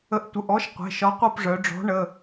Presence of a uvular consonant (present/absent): present